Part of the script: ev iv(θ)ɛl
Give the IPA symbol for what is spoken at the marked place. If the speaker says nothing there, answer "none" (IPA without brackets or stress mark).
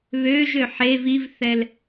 θ